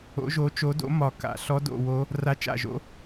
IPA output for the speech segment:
o̰˨˦ ʒ o˨˦ t͡ʃ o˨˦ d o̰˨˦ m ɒ˨˩ k a̰˨˩ ɬ ɔ˨˦ d o̰˨˩ w o˨˦ | r a˨˦ t͡ʃ a̰˨˩ ʒ o̰˨˦

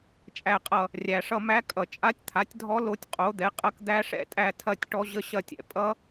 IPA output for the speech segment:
t͡ʃʼ æ˦˨ qʼ ʌ˦˨ | rʲ æ˩ ʂ ʌ˦˨ m æ˦˥ kʼ ʌ˩ t͡ʃʼ a˦˥ tʲ t̪ʰ a˩˥ tʲ dʱ ɔ˦˥ l o˦˥ tʲ qʼ o˩˥ d̪ ɛ˩˥ qʼ ɐ˦˥ k d̪ æ˦˥ ʂ ɛ̰˦˨ tʼ æ˦˨ tʰ ɐ˦˨ tʲ ʈ ɔ˦˥ ʑ ə˦˥ ɕ ɐ˦˨ tʲ ɛ̰˩ pʼ ʌ˦˥

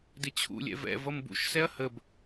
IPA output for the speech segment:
d ɪ t͡ɕʰ ṵ lʲ ɛ̰ v ɛ̰ v ʌ m b ṵ ʃ s ɛ ɐ̯ h ə b

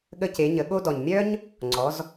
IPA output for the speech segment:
ɠ ə˧ c e˩˧ ɲ ə˩˧ ɠ o˧ d ɔ˩ ɲ mʲ œ˥ ɲ | ŋ͡ǀ ɔ˩˧ z

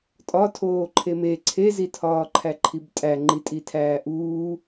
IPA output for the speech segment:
tʼ ɒ tʰ oː ǃʰ e m e ǀʰ e z i tʰ ɒː ǃʰ æ ǃʰ i b tʼ æ ŋ͡ǃ i tʼ i tʰ æː ʔ uː

